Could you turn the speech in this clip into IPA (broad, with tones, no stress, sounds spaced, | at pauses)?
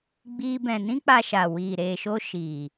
ɡ͡b iː˦ b ɛ̃˧ n ĩ˦ k͡p a˧ ʃ a˨ w iː˨ ɾ eː˧ ʃ o˦ ʃ iː˨